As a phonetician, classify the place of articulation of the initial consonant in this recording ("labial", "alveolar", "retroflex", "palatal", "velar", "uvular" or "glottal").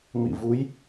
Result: labial